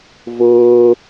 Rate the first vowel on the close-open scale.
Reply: close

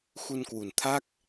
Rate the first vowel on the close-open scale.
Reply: close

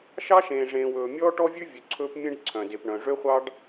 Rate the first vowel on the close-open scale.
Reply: open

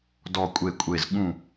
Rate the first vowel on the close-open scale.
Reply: mid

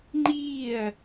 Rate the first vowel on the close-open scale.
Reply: close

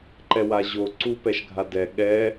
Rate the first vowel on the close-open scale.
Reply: mid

